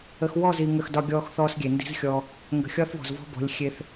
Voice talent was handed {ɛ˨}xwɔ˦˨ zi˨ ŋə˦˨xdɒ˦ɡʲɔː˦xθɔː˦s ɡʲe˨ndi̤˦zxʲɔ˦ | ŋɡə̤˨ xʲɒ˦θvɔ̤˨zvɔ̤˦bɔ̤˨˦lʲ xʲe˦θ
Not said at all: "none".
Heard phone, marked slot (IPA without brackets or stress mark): ə˨